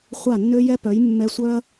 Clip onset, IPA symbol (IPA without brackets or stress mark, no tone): χʷ